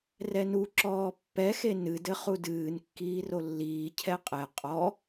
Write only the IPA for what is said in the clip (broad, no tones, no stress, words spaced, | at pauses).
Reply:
rɛnuǁɔː pːɛxe nɨdɘ χudɨːn kːiːrolːiː cʰɛqʼɛ qʼɔ